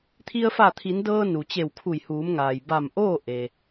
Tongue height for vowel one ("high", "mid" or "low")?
high